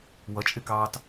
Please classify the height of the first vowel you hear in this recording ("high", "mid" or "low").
mid